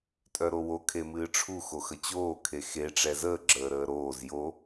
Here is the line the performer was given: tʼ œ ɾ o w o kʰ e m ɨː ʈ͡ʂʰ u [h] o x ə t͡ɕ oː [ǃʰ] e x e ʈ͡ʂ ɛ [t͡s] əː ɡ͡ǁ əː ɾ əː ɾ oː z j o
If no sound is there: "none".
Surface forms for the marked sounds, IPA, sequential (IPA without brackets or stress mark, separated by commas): x, kʰ, z